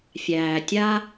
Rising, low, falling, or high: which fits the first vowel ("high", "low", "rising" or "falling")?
low